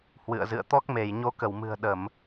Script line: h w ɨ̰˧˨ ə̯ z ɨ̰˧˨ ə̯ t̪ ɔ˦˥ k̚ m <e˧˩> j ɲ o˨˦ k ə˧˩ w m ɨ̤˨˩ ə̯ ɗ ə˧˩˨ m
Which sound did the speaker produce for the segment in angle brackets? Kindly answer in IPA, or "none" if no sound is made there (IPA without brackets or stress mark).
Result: e˧˩